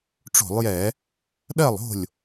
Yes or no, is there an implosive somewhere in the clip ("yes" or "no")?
yes